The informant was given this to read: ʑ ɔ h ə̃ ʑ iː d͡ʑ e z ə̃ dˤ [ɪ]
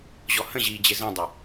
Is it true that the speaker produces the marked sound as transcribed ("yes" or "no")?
yes